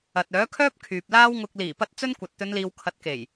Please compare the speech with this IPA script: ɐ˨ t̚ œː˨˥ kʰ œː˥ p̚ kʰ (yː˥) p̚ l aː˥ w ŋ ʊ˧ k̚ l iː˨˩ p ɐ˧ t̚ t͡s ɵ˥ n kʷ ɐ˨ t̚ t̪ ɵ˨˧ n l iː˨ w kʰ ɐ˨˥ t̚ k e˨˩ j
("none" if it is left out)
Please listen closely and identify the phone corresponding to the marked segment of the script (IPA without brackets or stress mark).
yː˨